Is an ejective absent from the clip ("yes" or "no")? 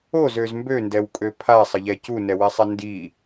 no